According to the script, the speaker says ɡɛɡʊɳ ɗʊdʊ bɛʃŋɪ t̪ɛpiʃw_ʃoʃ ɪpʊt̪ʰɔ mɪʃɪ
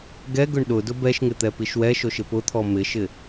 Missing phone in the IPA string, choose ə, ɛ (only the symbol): ɛ